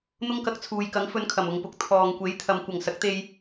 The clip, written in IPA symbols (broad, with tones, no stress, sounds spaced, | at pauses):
n̪ ʊ˥ ŋ k ɐ˧ k̚ t͡sʰ uː˨ j k ɐ˨˥ ŋ f ɵ˧ n kʰ ɐ˨˩ m ʊ˨ ŋ p ʊ˨ k̚ t̪ʰ ɔː˨ ŋ kʷ e˨˥ j t̪ʰ ɐ˨ m kʷ ɐ˨˩ ŋ s ɐ˨˥ k̚ t̪ e˧ j